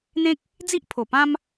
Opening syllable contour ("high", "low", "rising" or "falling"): high